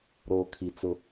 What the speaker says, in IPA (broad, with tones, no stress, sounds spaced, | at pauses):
ɾ oː˨ kʰ i˨ t͡s ʊ˦